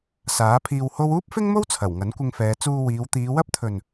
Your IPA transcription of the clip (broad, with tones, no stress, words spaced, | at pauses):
saː˨˥pʰiː˧w ho˥w uː˥p̚fɪ˥ŋmo˥w t͡sʰɐ˨˩w ŋɐ˨˥nkʷɪ˧ŋfɛː˨˧ t͡suː˧wiː˨˧w t̪iː˨˧wɐ˥p̚t̪ʰɵ˨n